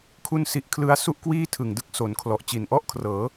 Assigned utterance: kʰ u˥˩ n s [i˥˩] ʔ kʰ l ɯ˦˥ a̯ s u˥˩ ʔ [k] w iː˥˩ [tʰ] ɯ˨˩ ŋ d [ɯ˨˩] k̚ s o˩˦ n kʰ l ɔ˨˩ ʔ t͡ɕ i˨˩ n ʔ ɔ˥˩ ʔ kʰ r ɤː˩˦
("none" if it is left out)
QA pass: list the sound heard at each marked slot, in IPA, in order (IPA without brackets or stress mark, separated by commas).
i˦˥, k, tʰ, ɯ˥˩